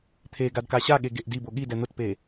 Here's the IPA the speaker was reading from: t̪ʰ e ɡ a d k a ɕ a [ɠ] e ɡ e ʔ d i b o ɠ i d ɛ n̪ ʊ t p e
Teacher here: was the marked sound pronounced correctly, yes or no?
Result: yes